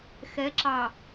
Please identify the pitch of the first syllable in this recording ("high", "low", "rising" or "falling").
rising